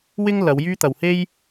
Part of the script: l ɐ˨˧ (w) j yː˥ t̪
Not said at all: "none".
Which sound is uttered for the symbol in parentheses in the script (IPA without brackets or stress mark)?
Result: w